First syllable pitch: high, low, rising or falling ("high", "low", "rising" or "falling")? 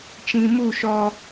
low